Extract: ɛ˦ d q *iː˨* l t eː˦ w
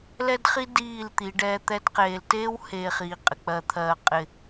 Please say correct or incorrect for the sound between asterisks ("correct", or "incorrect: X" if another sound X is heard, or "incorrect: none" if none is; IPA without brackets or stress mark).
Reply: incorrect: eː˨